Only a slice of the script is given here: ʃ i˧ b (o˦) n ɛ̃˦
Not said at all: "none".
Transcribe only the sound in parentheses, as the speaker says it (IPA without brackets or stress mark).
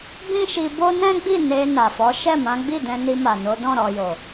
o˦